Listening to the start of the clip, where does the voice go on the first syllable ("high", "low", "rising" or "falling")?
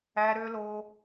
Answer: high